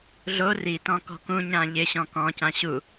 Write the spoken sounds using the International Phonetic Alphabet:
ɮ o r i t ɔ̃ k ɔ̤ k ũ ɲ ã ʎ ɪ ɕ ɔ̃ k ɔ̃ c ã ɕ u

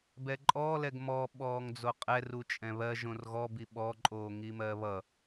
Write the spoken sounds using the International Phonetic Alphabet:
b ɛ ǃʼ ɔː l ɛ ɡ m ɔ ɓ ɔː ŋ d͡z o qʼ ɛ r u t͡ʃʼ ɛ̃ β ɜ ʒ õ r ɣ ɔ b i ɓ ɔ ǃʼ oː ŋ i m ɜ β ʌ

